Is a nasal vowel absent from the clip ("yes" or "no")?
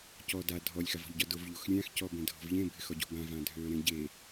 no